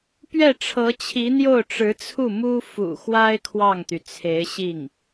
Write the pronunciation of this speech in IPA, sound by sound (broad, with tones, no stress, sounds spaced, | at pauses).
p ɥ ɛ˥˩ ʈ͡ʂʰ ɤ˧˥ t͡ɕʰ i˧˥ n̪ j o˥˩ ʊ̯ ʈ͡ʂ ɻ̩˧˥ t͡sʰ u˥˩ m u˥ f ṵ˨˩ x w a˥ ɪ̯ kʰ w ɑ˥˩ ŋ t̪ y˩ t͡sʰ e˧˥ ɪ̯ ɕ i˥˩ ŋ